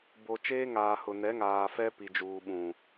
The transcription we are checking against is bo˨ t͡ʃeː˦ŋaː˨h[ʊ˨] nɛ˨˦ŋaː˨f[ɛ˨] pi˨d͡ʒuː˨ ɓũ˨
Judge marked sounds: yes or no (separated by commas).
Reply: yes, no